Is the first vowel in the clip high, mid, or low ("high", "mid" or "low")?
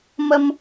mid